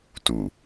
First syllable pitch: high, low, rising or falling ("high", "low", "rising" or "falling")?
low